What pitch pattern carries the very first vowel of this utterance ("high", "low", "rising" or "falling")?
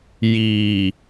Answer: low